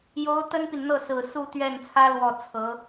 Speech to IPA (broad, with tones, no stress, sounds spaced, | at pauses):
j o˧˥ ʊ̯ t̪ ə˥ n p i˨ n n̪ ɤ˥˩ s ɹ̩˨˩ s u˥˧ t̪ ɥ ɛ˥˩ n t͡sʰ ä˥ l w ɔ˥˩ t͡sʰ ɤ˧˥